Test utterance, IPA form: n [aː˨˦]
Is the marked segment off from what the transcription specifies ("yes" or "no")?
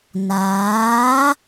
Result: no